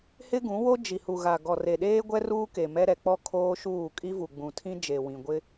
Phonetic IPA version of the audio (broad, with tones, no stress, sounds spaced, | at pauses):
h ɪ˦ ɡ ũ˨˦ w o˦ d͡ʒ i˨ h u˨ ɣ a˨ ɡ ɔ˨ r e˨ ɗ eː˦ ɡʷ ɛ˦ r uː˦ k e˨ m ɛ˦ ɾ ɛ˨ k͡p ɔ˦ kʰ oː˦ ʃ uː˦˨ kʼ i˦ v u˨ ɡ͡b ũ˨ tʰ ĩ˦ d͡ʒ e˨ w ĩ˨ ɡʷ ɪ˦